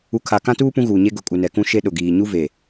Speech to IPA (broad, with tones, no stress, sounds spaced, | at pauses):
u˨ kʰ a˨ k ã˦ t uː˦ p ũ˦ ɣ uː˨ ɲ e˦ ɡ ʊ˨ kʼ u˨ n ɛ˨ k ũ˦ ʃ e˦ ɗ ʊ˨ ɡ iː˨ ɲ u˦ v e˨